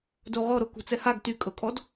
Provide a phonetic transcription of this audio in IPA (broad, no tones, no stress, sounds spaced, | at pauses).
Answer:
d o ʁ ɔ ɾ o k ṳ t͡s ɛ h a ɡ t y kʼ ɤ kʼ ɔ d